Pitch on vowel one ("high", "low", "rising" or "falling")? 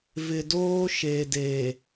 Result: low